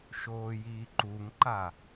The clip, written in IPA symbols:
ʃoːjiːǃuŋǃa

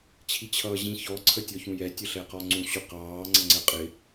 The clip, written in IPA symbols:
t͡ɕʰit͡ɕʰʌːʑĩ çɔ ǀʰətʲɔçũjɛ tʲəɬɛqɔŋ͡ǀũ ɕʊqɑː ŋ͡ǀʌŋ͡ǀɜqʼɪ

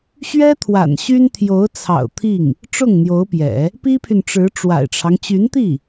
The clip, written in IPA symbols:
ɕɥɛ˥ t̪ʰwa̰˨˩nɕy˥n t̪ʰjo˧˥ʊ̯t͡sʰɑ̰˨˩ʊ̯t̪ʰi˥˩ŋ | ʈ͡ʂʊ˥˩ŋn̪jo˧˥ʊ̯pjɛ̰˨˩˦ | pi˥pʰy˨nʈ͡ʂɻ̩˧˥ ʈ͡ʂwa̰˨˩ɪ̯ʈ͡ʂʰɑ˦ŋ t͡ɕy˧˥nt̪i˥˩

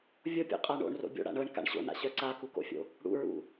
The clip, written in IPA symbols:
vʲopʲo̰qʼa ɳo̰ɳro̰ bʲo̰ɽa̰ ɳɤɳka̰ɳ ɕo̰na̰ɕœ ǀakuko̰fʲo̰ | ɽṵɹṵ

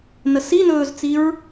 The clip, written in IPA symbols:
nəsinɵːzt͡siɹ

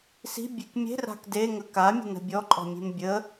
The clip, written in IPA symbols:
si̤bʲek mʲe̤ra̤k deŋə kamʲə̤nə̤ bʲɔǃʼɔ̤mʲe̤m bʲə

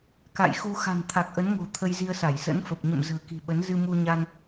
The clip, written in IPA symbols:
ka̰˧˨jxu˧ xa̤˨˩nt̪ʰa˨˩k̚ʔə˨˦nŋo̤˨˩ t̪ʰə˧jzi˧ə̯sa˧˩j sə̰˧˥nfə˨˩p̚ ɲə̰˧˨m zə̤ː˨˩ki̤˨˩ɓə˨˦n zɨ˧mu˧ɲa˧n

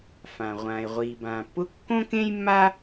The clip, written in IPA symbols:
fã˩ ʁʷãː˩e̯ʁʷiː˩bãː˩pːʊ˥ kːõ˥kẽ˥jmːa˥

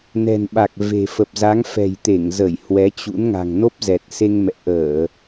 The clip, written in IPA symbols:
nɛ̤˨˩nɓa˨˩k̚ ve̤˨˩ fə˨˩p̚za˨˦ŋ fɛ̤˨˩jt̪e˧˩ŋzə˧˩j hwɛ˨˦t͡ɕṵ˧˥nŋa̤˨˩ŋ no˦˥p̚zɛ˨˩t̚se˧ŋmɛ̰˧˨ ʔəː˧˩˨

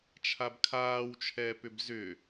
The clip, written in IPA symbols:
t͡ʃʰabkʰaːwt͡ʃʰɛːpʏb zʏ

